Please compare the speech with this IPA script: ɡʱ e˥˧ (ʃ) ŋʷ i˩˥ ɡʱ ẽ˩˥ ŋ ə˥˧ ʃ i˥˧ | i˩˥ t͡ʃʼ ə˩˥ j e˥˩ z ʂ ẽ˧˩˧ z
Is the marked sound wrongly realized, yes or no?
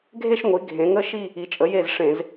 no